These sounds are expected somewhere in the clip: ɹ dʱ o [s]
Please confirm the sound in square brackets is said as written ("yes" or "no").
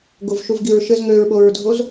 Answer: no